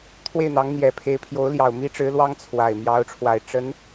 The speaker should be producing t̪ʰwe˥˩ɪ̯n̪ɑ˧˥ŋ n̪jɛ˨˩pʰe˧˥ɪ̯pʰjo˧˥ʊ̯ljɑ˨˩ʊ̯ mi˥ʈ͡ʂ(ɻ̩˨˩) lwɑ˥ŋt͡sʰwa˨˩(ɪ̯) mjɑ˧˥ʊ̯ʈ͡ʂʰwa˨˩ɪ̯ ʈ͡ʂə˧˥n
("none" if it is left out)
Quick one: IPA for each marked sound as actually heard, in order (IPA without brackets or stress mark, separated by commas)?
ɻ̩˧˥, ɪ̯